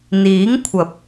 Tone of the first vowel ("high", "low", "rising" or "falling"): rising